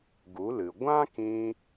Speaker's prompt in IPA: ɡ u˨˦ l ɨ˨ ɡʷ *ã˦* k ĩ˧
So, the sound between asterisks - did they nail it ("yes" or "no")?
yes